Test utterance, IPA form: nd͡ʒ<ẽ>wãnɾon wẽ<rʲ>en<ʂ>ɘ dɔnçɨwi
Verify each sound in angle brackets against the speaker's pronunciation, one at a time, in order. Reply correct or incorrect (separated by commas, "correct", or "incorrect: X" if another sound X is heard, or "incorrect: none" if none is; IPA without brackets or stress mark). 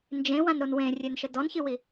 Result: correct, correct, incorrect: ʃ